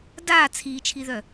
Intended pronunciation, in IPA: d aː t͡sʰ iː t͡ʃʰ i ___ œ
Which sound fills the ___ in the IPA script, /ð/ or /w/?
ð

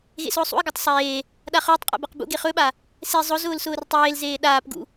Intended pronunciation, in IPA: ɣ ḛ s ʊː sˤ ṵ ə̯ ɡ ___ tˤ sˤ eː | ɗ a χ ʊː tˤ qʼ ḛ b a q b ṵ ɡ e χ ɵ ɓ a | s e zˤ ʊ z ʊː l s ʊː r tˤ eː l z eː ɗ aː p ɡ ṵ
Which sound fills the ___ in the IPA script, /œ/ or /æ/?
æ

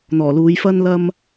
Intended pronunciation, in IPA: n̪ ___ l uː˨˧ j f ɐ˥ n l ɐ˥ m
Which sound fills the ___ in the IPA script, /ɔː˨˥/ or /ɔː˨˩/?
ɔː˨˩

